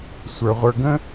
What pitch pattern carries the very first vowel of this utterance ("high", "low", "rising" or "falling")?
low